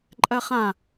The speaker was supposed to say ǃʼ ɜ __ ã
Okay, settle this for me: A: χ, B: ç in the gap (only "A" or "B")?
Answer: A